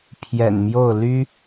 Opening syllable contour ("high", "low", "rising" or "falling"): low